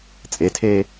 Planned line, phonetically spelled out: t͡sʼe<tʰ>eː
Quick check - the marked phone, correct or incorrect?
correct